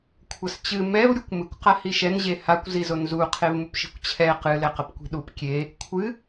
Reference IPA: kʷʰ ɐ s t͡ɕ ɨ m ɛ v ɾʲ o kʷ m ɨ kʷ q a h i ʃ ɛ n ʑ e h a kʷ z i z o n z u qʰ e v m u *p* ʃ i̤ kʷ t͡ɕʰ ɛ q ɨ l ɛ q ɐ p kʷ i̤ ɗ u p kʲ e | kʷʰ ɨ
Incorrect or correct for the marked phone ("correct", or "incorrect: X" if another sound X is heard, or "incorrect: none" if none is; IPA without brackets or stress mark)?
correct